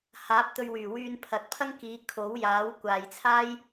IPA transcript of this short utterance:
h aː˨˥ p̚ t̪ ɵ˧ ɥ w yː˨˩ w yː˧ n pʰ ɐ˨ t̚ pʰ ɐ˥ ŋ k iː˨˧ kʰ o˨˥ w j aː˨˥ w kʷ aː˨ j t͡sʰ aː˥ j

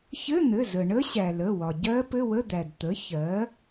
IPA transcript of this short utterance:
ç ɘ˧˥˧ n̪ ɘ˩˧˩ z ə˩ ɳ ə˦˥ ɕ æ˩ l ə˩˧˩ w ɒ˩ ɟ ɜ˦˥ p ɘ˧˥˧ w ə˧˥˧ d̪ æ˩ d t̪ ə˩˥ ç ɜ˩˥

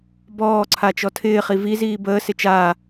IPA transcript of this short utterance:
b ɔː ǀʰ a t͡ʃ ɔ tʰ ɪː χ i v i z iː b əː s ɪ t͡ʃ aː

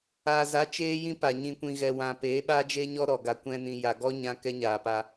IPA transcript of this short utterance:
aː˨ z a˨˦ t͡ʃ eː˦ j ĩ˦ p a˨ ɲ ĩ˧ kʷ ĩ˧ ɣ ɛ˨ w ã˨ p eː˨˦ ɓ a˦ d͡ʒ e˦ ɲ ɔ˦ ɾ ɔ˨ ɡ a˨ kʷ ɛ̃˧ n ĩ˨ j a˨ ɡ ɔ˦ ɲ ã˧ k ɛ˦ ɲ aː˨ p a˧

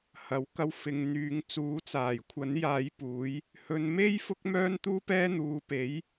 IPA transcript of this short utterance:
h ɐ˨˥ w k ɐ˧ w f ɪ˨ ŋ n̪ yː˨˧ ŋ t͡s uː˨˥ t͡s aː˨˩ j kʷʰ ɐ˨˥ n j aː˧ j p uː˨˥ j | h ɵ˧ n m e˥ j f ʊ˥ k̚ m œː˥ n t̪ uː˥ p ɛː˥ n̪ uː˨˧ p e˨˥ j

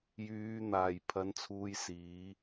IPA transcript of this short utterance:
j yː˨˧ n̪ aː˨˩ j pʰ ɐ˨˧ n t͡sʰ uː˨˧ j s iː˨˧

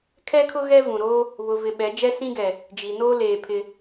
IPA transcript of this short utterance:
kʰ ɛ˦ kʰ ʊ˦ ɣ ɛ˦ v ũ˨ ɾ oː˦ | β ʊ˨ v ɪ˨ ɓ ɛ˨˦ d͡ʒ ɛ˦ s ĩ˦ ɡ ɛ˨ | d͡ʒ i˨ n oː˦ l eː˨ pʰ ɪ˦

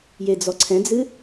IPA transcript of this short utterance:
j e d͡z ɔ ǀʰ ɛ̃ d͡z ɨ

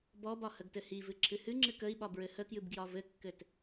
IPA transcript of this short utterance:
b ɔ b ɒ h ə ɡ t ɘ h i v ɨ ǁʰ ɨ h ɨ ŋ͡ǁ ɨ k ə i̯ ɓ ɒ b ɹ ɘ h ə k j ɨ b ɡ j ɒ v ɘ kː ɘ t

